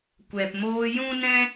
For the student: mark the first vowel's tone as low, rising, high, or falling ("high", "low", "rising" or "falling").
low